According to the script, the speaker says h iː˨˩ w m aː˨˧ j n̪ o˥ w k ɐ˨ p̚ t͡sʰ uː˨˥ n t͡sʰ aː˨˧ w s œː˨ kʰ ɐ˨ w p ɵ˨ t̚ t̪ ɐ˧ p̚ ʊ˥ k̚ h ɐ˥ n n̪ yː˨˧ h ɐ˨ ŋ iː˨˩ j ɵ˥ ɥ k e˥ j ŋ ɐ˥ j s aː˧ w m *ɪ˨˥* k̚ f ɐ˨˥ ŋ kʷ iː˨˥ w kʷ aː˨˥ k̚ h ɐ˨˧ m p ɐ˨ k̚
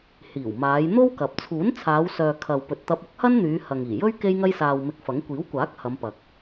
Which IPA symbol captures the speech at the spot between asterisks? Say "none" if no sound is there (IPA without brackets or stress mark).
ɪ˧